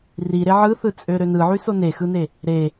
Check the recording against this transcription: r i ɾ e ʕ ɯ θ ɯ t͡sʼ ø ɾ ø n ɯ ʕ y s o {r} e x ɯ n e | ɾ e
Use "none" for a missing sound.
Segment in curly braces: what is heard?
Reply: n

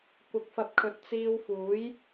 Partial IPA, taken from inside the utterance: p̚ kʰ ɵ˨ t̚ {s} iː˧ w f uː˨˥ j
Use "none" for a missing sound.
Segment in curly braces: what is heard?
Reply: t͡s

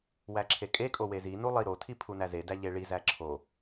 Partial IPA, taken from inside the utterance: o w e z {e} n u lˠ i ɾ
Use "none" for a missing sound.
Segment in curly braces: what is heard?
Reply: i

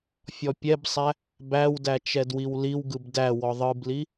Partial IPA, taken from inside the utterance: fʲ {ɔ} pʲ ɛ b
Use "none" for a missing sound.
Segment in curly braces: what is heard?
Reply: ɔ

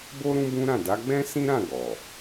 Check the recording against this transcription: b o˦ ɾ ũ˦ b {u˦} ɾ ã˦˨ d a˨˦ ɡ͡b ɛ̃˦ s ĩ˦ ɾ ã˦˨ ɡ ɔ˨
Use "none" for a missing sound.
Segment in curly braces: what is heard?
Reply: ũ˦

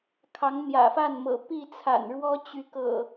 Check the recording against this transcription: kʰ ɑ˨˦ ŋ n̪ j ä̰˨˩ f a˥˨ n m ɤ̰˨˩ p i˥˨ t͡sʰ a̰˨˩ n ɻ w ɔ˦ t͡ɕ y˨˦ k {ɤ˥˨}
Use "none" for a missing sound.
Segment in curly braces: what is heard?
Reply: ɤ̰˨˩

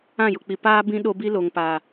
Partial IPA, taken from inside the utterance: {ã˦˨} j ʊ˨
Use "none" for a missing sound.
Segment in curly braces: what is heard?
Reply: ã˦˨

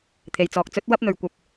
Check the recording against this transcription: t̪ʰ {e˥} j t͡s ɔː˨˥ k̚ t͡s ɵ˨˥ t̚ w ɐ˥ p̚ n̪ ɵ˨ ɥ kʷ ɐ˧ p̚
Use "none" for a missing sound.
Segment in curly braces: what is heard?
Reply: e˨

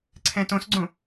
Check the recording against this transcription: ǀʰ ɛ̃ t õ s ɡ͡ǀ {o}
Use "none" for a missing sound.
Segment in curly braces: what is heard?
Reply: õ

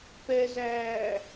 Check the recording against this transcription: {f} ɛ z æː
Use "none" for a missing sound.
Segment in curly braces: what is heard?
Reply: p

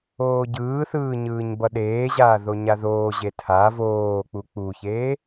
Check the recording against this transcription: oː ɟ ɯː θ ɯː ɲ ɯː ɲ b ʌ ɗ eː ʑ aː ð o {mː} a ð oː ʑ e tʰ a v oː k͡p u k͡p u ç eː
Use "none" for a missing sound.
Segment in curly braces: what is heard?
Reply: ɲ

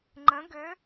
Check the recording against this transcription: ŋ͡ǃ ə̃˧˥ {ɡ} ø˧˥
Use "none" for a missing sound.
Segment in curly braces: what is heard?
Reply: ɡ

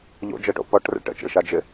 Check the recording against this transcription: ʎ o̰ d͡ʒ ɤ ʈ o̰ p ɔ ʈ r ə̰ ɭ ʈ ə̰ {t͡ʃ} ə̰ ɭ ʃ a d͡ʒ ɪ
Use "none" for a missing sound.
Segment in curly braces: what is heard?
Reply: t͡ʃ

